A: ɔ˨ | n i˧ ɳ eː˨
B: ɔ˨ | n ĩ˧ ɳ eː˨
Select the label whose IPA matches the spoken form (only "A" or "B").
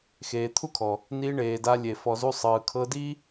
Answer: A